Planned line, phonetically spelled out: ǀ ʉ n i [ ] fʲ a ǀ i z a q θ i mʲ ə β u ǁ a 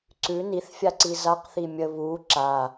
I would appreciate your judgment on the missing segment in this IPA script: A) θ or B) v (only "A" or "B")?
A